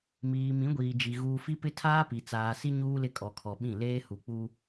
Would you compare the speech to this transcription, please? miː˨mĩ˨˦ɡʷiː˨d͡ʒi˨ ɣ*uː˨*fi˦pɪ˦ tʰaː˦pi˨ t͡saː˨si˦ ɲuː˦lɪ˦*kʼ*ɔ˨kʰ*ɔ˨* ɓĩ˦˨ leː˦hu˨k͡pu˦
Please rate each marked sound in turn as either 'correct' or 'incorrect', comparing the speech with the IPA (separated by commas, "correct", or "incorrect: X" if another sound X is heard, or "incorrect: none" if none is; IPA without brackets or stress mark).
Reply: correct, correct, correct